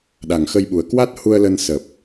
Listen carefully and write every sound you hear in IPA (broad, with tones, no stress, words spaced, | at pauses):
ɗa˨˩ŋxə˧jɓu˨˩ə̯ kwa˦˥t̚hu˧ə̯lə˧n sə˨˩p̚